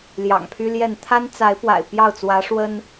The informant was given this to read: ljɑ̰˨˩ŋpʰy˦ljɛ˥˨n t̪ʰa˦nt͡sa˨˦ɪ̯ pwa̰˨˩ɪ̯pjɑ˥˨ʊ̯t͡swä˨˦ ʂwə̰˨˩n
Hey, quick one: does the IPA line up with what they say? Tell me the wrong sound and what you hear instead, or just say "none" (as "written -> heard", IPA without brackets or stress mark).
ə̰˨˩ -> ə˦